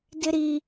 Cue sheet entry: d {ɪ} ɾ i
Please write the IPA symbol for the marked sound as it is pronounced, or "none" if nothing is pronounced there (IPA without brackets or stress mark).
ɪ